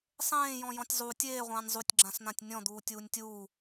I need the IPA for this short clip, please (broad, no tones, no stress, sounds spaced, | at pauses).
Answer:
sˤ ẽː j ɔ̃ j ɔ̃ tʲ zˤ u tʲ eː ʁʷ ãː nʲ zˤ u tʲ ɡ͡ǁ ã s n̪ ã tʲ nʲ ɔ̃ d̪ uː tʲ uː nʲ tʲ uː